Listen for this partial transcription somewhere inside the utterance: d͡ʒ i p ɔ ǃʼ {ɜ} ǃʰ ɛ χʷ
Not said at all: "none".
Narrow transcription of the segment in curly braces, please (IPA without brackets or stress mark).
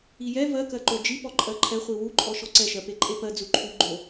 ɜ